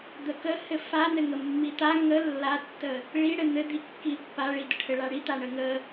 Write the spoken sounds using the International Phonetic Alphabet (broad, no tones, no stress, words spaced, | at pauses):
d̪əkəhɘ fanɘŋə mːit̪a ŋə lːatːə | ɭiɽɘ n̪ɘ d̪ikːipːaɭi dəʈʰɘɭaɽi t̪aɳəŋə